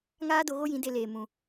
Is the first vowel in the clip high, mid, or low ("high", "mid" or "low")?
low